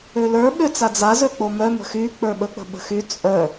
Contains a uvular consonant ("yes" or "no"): no